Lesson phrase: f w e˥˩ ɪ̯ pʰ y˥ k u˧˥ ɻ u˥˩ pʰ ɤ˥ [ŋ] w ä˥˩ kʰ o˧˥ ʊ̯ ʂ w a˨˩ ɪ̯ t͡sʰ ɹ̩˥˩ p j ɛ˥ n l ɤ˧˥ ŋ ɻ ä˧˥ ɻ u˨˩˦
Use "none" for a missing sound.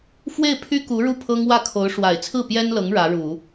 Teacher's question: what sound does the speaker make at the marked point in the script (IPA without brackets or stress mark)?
ŋ